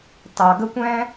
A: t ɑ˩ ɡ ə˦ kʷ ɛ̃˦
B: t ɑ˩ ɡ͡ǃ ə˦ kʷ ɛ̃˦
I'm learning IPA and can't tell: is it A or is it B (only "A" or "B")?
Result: A